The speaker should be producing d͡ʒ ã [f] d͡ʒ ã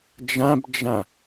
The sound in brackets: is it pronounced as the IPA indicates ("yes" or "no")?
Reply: no